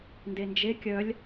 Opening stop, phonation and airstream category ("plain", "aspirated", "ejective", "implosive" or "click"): plain